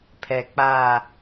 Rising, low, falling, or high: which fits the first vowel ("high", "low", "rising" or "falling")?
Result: low